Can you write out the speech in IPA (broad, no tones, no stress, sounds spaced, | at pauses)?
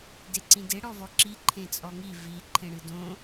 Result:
d e ǀ ĩ d e ɽ ɔ v ɔ ǁ i ǃʰ ẽ t͡sʼ ɔ ŋ i v i ǃʰ ẽ ɽ ɨ d õ